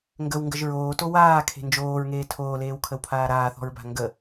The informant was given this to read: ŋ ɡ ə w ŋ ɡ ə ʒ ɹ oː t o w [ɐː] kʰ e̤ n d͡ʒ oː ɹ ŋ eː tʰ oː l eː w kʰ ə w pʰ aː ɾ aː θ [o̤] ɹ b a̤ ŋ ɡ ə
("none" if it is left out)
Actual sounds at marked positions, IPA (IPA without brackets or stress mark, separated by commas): aː, ɔ̤